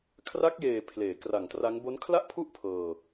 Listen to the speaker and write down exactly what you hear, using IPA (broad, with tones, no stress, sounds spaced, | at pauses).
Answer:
kʰ r a˦˥ k̚ j eː˨˩ pʰ l eː˩˦ k r a˨˩ ŋ t r a˦˥ ŋ b o˦˥ n kʰ l a˥˩ ʔ pʰ u˥˩ ʔ pʰ ɤː˧